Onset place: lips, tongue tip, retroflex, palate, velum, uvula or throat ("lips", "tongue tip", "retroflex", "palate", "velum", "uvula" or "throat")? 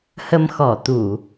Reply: throat